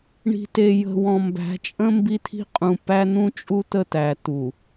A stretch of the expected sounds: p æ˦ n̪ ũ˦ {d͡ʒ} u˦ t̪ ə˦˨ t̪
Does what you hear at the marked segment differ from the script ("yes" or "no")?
yes